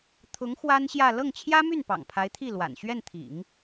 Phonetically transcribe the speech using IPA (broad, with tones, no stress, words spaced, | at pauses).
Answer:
t̪ʰʊ˧˥ŋ xwa˥nɕjä˥˧ lɤ˥˩ŋt͡ɕʰjä˥my˥˩n pɑ̰˨˩ŋpʰa˧˥ɪ̯t̪ʰi˥˩lwa̰˨˩n ɕɥɛ˥˩nt̪ʰḭ˨˩˦ŋ